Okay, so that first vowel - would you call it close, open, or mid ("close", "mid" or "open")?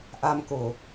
open